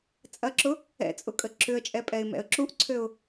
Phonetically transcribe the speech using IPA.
t͡sʼ ɐ ǁ ʊ | ɛ̰ t͡sʼ ʊ kʼ ə ǁ ʏ ə̯ t͡ʃʼ ɛ pʼ ɛ ɪ̯ m ɛ̰ ə̯ ǁ u ʔ ǀʰ ø ʊ̯

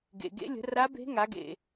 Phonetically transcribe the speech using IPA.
ɡ ḛ˩ ɡ ḛ˧˥ lʲ ə̤˩˥ r a˧˥ b e̤˧˥ ŋ a˩˥ ɡ ḛ˩

